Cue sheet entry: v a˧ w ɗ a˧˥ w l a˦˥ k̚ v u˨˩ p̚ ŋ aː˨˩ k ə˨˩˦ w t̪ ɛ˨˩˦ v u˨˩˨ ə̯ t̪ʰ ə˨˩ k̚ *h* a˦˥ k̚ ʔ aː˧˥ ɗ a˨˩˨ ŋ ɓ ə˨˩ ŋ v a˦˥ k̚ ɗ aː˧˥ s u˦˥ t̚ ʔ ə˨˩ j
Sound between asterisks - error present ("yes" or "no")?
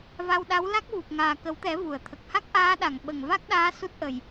no